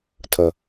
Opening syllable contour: low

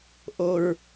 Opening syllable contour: low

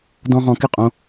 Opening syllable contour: high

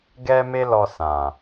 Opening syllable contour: high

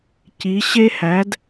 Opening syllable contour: rising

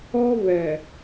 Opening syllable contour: high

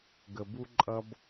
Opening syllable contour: low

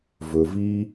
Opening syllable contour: low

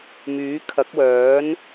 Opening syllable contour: rising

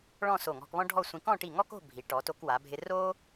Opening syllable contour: falling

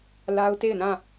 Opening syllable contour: high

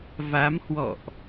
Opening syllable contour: rising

